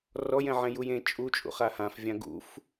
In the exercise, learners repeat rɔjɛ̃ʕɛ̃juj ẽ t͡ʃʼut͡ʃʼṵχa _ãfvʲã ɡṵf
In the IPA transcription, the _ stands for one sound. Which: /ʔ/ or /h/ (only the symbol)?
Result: h